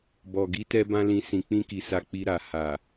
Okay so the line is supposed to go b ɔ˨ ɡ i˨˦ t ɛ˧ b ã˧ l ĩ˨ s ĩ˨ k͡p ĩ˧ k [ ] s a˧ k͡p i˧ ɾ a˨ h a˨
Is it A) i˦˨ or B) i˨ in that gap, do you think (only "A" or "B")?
B